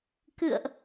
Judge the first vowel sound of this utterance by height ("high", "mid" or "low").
high